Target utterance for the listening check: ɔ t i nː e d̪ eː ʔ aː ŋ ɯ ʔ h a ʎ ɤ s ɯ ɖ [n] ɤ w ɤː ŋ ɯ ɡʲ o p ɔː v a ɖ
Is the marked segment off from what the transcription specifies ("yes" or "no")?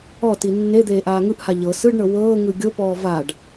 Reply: yes